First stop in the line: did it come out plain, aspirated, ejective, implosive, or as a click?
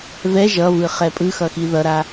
ejective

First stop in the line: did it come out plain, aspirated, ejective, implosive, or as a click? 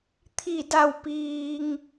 aspirated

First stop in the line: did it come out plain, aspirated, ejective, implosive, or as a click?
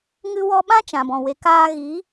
implosive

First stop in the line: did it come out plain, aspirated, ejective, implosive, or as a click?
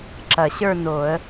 click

